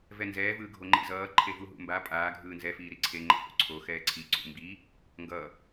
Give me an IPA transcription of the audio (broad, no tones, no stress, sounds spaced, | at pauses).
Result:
v ɛ n z ɛː v ɯː ɡʱ o ŋ͡ǃ ḭ z ʌː ǃʰ e v u ɦ ṵ m b a pʼ aː ɡʱ ɯː n z ɛ f iː ɾ i ǀʰ e ŋ͡ǃ ɛ̰ h ṵ ǀʰ o x ɛː ǀʰ i ǀ ṵ m b i | ŋ ɡ ʌ